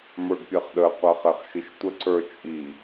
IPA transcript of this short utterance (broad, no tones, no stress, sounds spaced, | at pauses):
m ə˞ ɡ pʲ ɛ χ ɗ ə qʷ ɐ χ ɛ χ ʃ i ʃ tʷ ə ǀ ə˞ t͡ʃʼ i